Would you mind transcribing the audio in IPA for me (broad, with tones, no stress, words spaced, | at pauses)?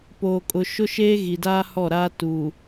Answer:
poː˨kʼʊ˨ ʃʊ˦ʃeː˦ɣi˨daː˦ hɔ˦˨ɾaː˦ tu˨